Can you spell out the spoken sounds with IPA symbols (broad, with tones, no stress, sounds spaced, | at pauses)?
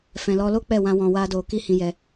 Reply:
f ɛ̃˨ l ɔ˧ l o˦ k͡p ɛ˦˨ w ã˧ w ɔ̃˧ w a˦ d o˧ k i˦ h ĩ˧ j ɛ˧